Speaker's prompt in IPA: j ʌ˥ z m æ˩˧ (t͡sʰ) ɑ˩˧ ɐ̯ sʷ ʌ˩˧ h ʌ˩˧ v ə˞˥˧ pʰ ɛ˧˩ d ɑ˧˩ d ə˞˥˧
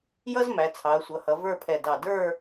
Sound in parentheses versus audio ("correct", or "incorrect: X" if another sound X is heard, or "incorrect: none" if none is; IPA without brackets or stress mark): correct